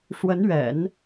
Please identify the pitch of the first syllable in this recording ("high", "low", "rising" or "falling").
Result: rising